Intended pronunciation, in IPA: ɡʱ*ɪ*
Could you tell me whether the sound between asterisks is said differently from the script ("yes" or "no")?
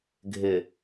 no